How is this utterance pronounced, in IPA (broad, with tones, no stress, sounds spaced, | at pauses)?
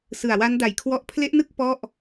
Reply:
s ɯ˨˩ a̯ w a˦˥ n d a˨˩ j kʰ w ɔ˦˥ ʔ pʰ l e˦˥ ʔ n ɯ˥˩ k̚ p ɔ˥˩ ʔ